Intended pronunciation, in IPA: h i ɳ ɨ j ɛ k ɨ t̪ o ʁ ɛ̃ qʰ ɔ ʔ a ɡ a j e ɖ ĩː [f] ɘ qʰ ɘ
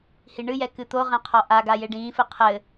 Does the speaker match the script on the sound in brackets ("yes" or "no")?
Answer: yes